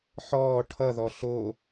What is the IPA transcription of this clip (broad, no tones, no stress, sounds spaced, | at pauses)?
ħ ɔː ʈʰ ʌ ð ɔ ɬ o